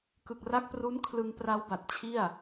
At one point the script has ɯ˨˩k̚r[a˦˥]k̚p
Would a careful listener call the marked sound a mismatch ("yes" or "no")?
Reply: no